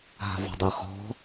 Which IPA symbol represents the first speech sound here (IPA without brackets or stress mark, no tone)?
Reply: ɦ